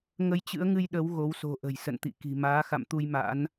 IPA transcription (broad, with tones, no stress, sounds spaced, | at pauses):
ŋ ə˧ j t͡ɕ ɨ̰˧˥ ə̯ ŋ ɨ˧ j ɗ ə˨˦ w ɣ o˨˦ w s o̤˨˩ ʔ ə̤˨˩ j s ə̰˧˨ n t̪ ḭ˧˨ k i̤˨˩ m aː˨˦ x a̰˧˨ m t̪ u˧ j m a̰˧˥ n